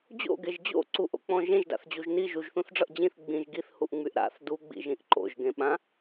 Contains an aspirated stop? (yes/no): no